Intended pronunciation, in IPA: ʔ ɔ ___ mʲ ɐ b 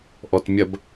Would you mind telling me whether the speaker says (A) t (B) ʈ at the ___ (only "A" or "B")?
A